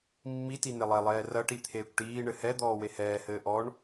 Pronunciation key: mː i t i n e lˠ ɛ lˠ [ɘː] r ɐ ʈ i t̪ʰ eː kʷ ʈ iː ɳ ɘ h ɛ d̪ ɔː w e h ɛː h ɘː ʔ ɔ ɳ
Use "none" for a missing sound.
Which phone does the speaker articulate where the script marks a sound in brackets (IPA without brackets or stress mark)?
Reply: ɛː